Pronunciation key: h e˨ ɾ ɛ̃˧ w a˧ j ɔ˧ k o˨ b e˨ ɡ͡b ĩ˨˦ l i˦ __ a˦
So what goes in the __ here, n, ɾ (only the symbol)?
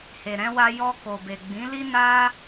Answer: n